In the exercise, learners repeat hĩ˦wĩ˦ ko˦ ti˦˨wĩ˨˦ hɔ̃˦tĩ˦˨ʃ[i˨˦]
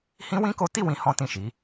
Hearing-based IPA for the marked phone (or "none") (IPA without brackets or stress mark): i˨˦